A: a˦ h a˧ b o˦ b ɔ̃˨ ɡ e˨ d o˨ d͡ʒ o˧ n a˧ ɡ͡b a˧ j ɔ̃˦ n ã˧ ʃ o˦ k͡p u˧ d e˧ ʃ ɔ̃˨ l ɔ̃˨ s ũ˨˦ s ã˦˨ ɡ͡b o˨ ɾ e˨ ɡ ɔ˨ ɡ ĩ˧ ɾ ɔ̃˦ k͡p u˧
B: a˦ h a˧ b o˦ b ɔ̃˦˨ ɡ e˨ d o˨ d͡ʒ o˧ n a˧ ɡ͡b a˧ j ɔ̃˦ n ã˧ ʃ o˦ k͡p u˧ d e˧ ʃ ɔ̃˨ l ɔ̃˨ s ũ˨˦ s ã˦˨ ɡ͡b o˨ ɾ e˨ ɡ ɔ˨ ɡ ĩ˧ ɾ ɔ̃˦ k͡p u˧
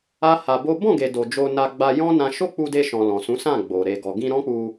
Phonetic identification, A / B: B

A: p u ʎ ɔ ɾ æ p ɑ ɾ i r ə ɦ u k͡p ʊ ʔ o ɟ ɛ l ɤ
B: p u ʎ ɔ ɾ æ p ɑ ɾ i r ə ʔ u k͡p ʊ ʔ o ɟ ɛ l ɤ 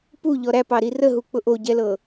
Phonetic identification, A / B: A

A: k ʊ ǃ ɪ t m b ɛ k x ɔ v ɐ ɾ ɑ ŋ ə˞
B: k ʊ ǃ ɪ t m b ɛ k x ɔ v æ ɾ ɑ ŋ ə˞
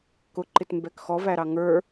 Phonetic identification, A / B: B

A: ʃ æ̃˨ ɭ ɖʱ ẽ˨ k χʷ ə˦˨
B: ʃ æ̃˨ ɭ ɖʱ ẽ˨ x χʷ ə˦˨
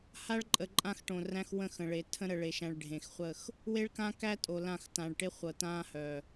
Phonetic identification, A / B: B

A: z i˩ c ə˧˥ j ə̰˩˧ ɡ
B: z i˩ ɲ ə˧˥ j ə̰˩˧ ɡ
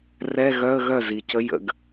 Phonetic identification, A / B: A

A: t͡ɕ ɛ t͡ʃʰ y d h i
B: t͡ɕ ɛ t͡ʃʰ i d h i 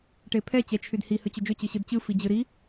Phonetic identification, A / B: A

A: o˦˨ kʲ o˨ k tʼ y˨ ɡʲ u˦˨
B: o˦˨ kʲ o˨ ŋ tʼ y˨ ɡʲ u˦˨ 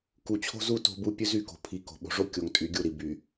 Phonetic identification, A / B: B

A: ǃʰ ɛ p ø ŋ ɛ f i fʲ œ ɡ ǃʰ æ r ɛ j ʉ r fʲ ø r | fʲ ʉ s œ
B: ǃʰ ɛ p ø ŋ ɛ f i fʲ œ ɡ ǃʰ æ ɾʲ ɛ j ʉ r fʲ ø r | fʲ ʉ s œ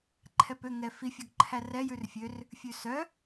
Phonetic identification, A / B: A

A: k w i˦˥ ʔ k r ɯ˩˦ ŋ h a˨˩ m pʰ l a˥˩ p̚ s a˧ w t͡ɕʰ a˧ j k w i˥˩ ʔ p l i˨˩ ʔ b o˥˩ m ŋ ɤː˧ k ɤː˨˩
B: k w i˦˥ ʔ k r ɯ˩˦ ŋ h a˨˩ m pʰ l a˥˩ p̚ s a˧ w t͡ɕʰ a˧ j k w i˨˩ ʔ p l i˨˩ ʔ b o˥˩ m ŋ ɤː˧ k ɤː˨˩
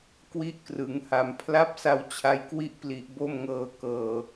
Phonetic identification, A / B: A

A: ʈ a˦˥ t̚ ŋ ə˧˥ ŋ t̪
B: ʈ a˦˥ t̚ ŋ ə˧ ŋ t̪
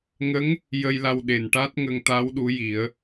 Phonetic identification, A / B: B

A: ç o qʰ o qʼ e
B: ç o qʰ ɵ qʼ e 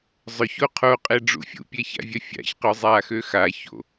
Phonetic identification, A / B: A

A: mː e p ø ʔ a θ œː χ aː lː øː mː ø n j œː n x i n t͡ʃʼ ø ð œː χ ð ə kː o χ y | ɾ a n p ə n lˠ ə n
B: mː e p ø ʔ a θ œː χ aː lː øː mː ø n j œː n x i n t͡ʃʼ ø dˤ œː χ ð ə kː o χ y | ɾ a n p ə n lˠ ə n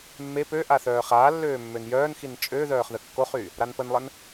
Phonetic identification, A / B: A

